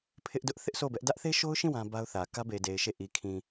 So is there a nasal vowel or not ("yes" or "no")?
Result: yes